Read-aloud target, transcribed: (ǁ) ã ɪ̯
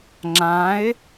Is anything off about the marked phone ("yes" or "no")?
yes